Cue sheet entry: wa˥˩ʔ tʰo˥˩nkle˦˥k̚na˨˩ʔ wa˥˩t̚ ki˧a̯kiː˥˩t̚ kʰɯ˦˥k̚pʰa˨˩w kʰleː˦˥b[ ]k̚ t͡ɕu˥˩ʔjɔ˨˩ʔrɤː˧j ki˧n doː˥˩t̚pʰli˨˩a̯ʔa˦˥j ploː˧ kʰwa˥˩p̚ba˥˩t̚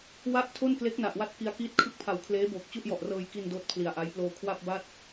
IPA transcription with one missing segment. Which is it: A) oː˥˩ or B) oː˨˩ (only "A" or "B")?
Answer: B